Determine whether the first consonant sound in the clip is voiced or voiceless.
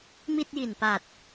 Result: voiced